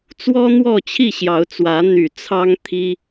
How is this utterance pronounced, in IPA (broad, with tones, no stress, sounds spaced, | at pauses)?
t͡s w ɔ˦ n̪ w ɔ˥˨ t͡ɕʰ i˥˨ ɕ j ɑ˨˦ ʊ̯ t͡s w ä˨˦ n̪ y˨˩ t͡sʰ ɑ˦ ŋ t̪ʰ i˦